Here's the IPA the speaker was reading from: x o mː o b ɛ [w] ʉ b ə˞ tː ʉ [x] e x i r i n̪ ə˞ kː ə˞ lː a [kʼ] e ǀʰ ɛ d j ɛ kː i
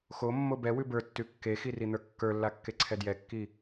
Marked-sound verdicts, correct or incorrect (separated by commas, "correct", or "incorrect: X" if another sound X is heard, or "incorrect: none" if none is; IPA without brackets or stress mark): correct, incorrect: kː, incorrect: kː